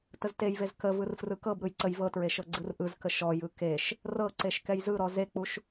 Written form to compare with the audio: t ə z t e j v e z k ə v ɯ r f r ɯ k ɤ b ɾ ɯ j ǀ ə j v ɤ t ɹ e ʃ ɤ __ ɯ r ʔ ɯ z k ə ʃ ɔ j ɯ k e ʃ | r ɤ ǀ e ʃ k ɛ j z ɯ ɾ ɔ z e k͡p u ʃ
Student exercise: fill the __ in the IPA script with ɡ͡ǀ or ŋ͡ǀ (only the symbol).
ɡ͡ǀ